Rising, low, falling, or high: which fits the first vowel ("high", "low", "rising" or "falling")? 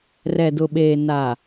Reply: low